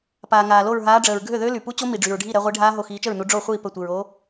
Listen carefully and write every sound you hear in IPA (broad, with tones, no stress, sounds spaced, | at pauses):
p aː˩ ŋ aː˩ l o˧˩ ɹ ɦ aː˨˦ ɖ͡ʐ əː˩ ɹ ɡʱ ø˥˩ ð ø˦˥ l y˩ p u˦˥ t͡ɕ o˦˥ m i˩ ɖ͡ʐ y˩ ɹ ɖʱ i˥˩ ɾ ɛ˨˦ ʁʷ i˨˦ ɖʱ aː˦˥ ɦ o˧˩ x iː˨˦ t͡ʃ ə˥˩ ɹ n u˨˦ ɖ͡ʐ o˥˩ χʷ iː˥˩ p ə˧˩ tʷ i˩ ɹ o˨˦